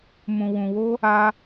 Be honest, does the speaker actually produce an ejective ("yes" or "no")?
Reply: no